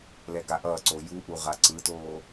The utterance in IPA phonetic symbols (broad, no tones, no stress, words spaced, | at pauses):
lɛɡaʔʌːǀo juʔu ʁaǀɯtoː